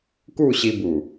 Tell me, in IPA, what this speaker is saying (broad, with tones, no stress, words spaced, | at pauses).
ku˥˧ɕi˧bu˨˩